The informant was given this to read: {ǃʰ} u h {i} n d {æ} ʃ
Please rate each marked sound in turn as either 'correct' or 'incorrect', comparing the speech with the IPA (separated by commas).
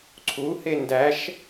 incorrect, incorrect, correct